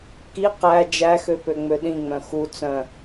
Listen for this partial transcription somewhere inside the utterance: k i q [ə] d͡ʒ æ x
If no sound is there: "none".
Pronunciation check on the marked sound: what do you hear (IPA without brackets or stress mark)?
æ